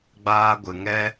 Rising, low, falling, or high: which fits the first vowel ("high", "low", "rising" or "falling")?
high